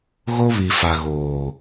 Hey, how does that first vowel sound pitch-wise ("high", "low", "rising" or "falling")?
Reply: high